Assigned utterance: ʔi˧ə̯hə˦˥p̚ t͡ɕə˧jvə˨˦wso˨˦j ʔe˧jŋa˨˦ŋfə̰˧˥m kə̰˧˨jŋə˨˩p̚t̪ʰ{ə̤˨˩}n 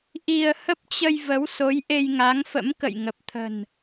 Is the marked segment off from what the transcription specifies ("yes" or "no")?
no